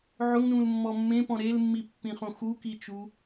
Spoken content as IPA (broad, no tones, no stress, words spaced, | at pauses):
ʕʊŋnũlmːɔ mːẽpɔ̃ ɾelmːipːĩχõ xukit͡ʃu